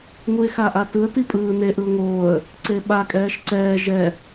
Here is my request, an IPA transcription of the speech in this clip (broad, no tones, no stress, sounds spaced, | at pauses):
ŋ u ɪ̯ x a ʔ a t ɯ ə̯ t i pʼ ɯː n e ʔ ɯ ʊ̯ ŋ oː ə̯ | ǀ e ɓ a kʼ ɛː ʃ ǀ ɛː ʒ ɛ